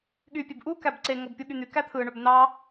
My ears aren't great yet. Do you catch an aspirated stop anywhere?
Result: yes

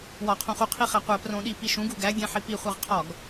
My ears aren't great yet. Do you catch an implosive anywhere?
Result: yes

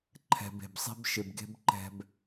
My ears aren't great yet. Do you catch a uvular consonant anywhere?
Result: no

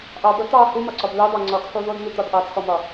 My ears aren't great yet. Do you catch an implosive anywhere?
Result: no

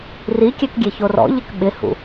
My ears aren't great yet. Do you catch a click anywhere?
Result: no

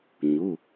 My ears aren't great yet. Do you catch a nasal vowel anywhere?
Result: no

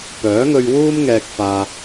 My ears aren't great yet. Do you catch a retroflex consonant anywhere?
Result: no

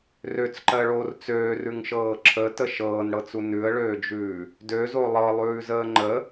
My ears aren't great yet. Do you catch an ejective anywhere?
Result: no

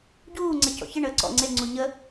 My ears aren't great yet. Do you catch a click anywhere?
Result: yes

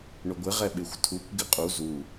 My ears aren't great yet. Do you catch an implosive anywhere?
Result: yes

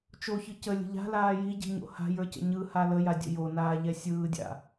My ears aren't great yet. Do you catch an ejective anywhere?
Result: no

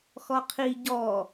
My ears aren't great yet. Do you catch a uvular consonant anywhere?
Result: yes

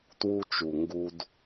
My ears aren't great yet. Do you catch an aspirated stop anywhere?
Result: no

